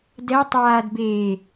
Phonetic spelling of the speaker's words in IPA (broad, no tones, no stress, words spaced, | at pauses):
dɛ tˤaːd beː